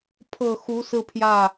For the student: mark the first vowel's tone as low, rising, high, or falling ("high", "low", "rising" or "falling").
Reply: low